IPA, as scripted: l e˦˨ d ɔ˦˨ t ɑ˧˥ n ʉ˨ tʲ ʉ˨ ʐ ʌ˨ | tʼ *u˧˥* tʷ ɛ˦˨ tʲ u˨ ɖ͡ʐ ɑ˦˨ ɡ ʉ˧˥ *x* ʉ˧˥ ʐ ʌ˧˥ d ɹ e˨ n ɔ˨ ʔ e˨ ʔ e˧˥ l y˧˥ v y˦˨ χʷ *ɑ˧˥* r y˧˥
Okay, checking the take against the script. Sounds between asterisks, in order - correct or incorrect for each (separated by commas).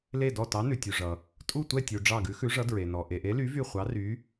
incorrect, correct, correct